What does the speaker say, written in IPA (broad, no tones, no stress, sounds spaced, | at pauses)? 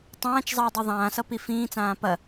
tˤ ãː t͡ʃ zˤ ʌː dˤ i ðˤ ãː s ʌ p i f ĩː t͡s ãː p ɐ